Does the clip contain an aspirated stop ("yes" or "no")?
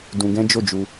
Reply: no